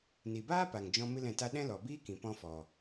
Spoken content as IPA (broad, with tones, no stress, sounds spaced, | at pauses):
n i˨ b aː˦ p a˨ ŋ d͡ʒ ɔ̃˧ m ɨ˦ l ɛ̃˦˨ t a˦ ɗ ɛ̃˦ l ɔ˨ b iː˦ k ĩ˨ p ɔ̃˧ f ɔ˨